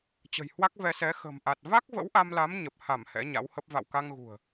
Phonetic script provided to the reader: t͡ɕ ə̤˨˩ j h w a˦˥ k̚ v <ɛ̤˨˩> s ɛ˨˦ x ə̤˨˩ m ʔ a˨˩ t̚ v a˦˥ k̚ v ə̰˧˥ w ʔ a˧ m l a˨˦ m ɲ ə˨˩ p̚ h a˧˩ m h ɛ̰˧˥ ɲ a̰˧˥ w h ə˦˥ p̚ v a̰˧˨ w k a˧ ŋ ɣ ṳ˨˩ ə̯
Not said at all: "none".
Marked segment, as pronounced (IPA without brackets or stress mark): ɛ˧